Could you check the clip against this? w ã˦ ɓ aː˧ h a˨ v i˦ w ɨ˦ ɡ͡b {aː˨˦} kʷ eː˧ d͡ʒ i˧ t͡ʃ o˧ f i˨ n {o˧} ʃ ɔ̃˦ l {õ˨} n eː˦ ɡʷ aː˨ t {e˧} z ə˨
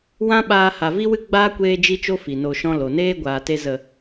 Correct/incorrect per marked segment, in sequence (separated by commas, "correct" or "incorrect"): incorrect, correct, incorrect, correct